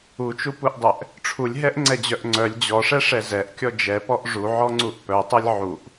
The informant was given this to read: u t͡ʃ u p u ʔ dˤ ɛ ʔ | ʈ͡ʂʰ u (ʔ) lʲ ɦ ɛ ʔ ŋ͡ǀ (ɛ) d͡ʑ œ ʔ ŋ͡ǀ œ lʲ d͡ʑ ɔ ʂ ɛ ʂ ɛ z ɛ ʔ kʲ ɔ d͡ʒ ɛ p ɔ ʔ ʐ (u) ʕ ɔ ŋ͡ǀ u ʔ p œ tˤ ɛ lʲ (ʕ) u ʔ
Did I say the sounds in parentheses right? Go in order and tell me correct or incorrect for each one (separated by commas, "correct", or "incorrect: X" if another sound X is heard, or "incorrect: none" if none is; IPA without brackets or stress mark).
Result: incorrect: none, correct, correct, correct